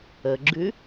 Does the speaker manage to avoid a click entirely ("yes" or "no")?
no